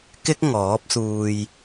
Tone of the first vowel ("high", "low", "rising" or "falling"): high